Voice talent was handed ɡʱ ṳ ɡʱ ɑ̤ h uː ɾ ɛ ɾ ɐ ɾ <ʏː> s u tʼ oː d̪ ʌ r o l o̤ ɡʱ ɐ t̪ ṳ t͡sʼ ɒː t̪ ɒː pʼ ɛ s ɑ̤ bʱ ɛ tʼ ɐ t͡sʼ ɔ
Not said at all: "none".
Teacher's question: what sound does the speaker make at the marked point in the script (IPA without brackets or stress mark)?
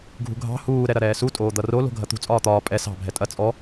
ɛː